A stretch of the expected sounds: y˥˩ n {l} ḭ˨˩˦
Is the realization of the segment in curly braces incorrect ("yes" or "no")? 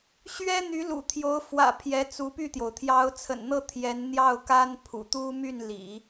no